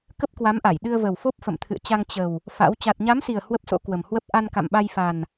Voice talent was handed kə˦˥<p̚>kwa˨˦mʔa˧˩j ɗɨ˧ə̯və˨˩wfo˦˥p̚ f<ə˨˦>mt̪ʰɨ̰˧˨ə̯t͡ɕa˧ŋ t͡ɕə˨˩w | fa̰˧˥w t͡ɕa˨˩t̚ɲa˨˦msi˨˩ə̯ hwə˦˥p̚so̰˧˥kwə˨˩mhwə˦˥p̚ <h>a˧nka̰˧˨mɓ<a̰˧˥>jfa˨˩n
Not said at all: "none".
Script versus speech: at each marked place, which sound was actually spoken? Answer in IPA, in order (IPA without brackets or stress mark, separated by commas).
p̚, ə̰˧˨, ʔ, a˧